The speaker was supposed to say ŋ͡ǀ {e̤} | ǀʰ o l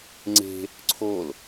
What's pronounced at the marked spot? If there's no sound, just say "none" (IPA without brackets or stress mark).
e̤